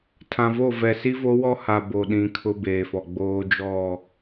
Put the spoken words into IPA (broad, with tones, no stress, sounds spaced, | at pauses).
tʰ ã˨ v o˦˨ v ɛ˨ s i˦ v o˦ w ɔ˦ h a˨ b o˨ ɗ ĩ˨ kʰ ʊ˦ b eː˨ f ɔ˨ ɡ͡b oː˦ d͡ʒ ɔ˦˨